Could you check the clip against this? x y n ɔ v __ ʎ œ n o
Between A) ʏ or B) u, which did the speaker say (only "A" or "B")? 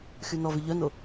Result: A